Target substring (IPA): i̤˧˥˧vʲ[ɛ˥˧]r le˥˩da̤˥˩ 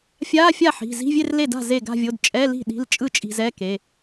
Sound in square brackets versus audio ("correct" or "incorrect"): incorrect